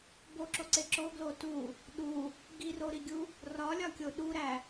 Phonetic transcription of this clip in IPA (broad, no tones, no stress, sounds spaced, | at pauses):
b o ǁ o ǀ e ǁ o ɡ l o t u | ɗ u | ɡ i r o ɾ i ɡʲ u | r ɒ lʲ ɒ kʲ o ɗ u ɾ æ